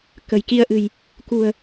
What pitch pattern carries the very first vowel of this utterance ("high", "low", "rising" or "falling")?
low